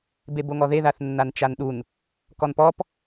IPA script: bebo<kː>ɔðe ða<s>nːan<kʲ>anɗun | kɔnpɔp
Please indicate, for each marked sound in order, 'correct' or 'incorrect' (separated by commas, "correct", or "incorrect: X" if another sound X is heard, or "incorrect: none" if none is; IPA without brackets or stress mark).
incorrect: ŋ, incorrect: θ, incorrect: t͡ʃ